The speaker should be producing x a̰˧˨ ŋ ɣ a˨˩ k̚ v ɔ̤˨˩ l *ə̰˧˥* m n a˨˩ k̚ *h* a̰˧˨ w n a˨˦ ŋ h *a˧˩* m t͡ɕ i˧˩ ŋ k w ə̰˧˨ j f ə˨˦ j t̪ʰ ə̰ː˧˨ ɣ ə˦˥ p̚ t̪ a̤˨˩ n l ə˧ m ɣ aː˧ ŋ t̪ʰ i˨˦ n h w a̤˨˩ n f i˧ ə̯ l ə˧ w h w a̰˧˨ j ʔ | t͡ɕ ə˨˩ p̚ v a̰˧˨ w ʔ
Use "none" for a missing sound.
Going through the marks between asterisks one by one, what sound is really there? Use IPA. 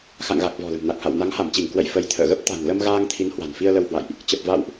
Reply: ə̤˨˩, h, a˧˩

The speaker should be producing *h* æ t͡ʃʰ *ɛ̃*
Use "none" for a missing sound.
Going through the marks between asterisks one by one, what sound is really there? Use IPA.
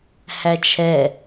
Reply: h, ɛ

